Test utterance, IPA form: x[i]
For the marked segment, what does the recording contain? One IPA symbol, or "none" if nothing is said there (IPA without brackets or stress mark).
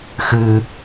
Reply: ɨ